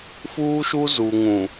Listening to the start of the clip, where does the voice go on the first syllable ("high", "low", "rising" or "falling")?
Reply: high